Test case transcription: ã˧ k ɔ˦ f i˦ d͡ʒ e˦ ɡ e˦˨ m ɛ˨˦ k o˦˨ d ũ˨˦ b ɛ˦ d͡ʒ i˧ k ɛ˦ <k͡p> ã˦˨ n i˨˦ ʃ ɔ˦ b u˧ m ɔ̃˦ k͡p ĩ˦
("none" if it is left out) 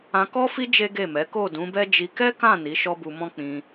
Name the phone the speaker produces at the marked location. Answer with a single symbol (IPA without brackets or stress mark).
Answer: k